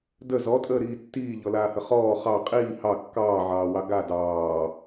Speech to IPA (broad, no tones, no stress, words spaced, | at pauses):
də zɔtʼəːɾiː tːiːʎɔlaːhə χɔː χɑ qʼiː hɑ kːɑːʕɑːwɑ ɡa dɑː